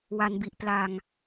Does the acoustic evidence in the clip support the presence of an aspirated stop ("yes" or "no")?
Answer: no